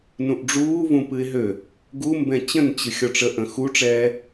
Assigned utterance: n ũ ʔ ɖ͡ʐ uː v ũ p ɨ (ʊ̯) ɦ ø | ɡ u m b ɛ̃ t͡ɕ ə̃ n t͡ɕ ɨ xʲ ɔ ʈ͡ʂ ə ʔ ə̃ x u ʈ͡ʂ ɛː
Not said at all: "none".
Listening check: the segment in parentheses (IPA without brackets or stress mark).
ɪ̯